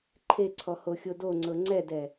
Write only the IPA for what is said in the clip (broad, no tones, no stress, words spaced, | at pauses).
ǃʰeǀʰɔ hoxʲodoŋ͡ǀɤ ŋ͡ǀɛdɛ